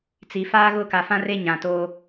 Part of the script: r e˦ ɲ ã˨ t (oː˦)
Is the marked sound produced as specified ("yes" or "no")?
yes